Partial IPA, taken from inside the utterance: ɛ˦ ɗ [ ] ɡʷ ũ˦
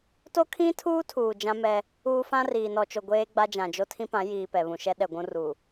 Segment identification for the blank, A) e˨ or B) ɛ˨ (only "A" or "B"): B